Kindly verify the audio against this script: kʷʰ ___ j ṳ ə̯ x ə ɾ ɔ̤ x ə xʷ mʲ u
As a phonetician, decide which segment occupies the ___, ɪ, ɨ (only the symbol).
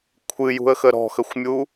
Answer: ɨ